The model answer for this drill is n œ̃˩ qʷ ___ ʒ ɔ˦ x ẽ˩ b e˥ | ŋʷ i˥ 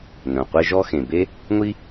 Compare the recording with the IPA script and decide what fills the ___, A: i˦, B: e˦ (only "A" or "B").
B